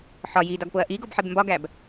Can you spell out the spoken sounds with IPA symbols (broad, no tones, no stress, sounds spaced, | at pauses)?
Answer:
ħ ɒ j i d ɒ ɡ p o ɐ̯ ʔ i ɡ o b ħ e b m b ɒ ɡ æ b